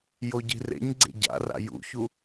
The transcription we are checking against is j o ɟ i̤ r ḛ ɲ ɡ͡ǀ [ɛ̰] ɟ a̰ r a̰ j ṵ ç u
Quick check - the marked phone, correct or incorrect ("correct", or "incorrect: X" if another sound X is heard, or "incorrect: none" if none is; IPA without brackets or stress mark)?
incorrect: ḛ